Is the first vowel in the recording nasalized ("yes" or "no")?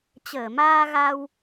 no